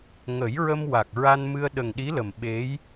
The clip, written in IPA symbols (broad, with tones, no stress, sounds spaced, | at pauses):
ŋ ə˨˩˦ j ɹ ə˧ m w a˨˩ k̚ ɹ a˧ n m ɨ˧ ə̯ ɗ ə˨˩ ŋ ɗ i˧˥ l ə˨˩ m ɓ e˧˥ j